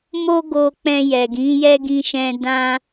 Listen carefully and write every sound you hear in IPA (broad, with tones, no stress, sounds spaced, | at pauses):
m o˦ ɡ o˧ k͡p ɛ̃˧ j ɛ˨ ɡ ĩ˨˦ j ɛ˦ ɡ ĩ˧ ʃ ɛ̃˧ d ã˦